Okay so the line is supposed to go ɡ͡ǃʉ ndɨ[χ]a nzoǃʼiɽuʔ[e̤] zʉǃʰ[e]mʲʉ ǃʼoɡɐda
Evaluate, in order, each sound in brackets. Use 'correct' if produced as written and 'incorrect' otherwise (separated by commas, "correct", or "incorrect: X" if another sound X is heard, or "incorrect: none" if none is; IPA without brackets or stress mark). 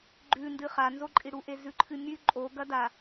correct, incorrect: e, incorrect: ɨ